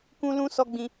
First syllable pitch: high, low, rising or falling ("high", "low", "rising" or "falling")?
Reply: high